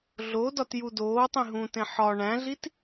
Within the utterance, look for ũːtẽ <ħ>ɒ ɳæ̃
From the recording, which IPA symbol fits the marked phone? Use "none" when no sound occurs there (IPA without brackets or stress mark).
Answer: ħ